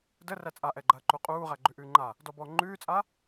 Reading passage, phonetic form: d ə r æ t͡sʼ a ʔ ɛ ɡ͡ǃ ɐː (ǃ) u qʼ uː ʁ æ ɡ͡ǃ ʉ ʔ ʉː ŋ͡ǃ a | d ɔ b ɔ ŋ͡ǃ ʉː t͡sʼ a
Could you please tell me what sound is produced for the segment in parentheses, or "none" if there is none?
ǃ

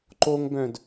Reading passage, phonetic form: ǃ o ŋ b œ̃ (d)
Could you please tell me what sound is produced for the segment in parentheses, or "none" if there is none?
d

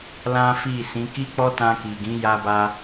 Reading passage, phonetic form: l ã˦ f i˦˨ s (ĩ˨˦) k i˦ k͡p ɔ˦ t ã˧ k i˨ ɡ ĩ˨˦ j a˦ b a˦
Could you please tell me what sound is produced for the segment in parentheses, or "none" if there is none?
ĩ˨˦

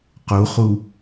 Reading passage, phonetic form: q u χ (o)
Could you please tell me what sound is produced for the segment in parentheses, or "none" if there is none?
u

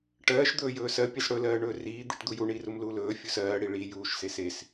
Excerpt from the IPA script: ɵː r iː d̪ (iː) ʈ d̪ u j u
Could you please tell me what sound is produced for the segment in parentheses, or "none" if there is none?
i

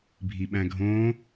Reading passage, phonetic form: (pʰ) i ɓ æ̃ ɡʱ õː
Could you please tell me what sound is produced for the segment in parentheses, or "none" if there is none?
bʱ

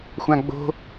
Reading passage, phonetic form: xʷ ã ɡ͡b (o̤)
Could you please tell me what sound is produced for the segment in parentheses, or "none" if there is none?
o̤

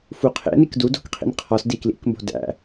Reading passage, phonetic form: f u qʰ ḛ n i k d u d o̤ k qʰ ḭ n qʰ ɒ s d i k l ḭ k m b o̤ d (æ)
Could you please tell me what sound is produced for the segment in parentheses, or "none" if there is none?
æ̰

